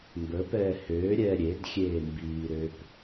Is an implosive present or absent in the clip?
absent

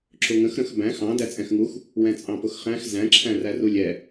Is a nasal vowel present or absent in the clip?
present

